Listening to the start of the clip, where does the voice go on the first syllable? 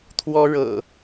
high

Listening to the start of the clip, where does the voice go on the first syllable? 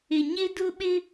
low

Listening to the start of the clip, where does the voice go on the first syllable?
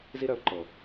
high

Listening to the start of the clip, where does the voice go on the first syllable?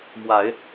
low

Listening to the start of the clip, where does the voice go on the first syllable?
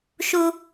high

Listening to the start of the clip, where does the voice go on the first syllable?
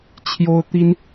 high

